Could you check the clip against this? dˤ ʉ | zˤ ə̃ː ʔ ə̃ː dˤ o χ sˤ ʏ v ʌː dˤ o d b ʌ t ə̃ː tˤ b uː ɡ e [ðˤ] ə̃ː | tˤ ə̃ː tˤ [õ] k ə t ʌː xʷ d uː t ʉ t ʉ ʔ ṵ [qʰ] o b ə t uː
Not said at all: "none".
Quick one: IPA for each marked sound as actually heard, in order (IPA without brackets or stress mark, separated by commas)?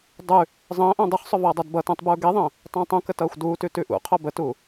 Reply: ðˤ, õ, qʰ